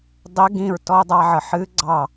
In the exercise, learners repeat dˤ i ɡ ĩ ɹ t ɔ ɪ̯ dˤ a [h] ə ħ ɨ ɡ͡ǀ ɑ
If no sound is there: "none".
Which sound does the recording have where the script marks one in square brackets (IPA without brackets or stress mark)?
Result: ʕ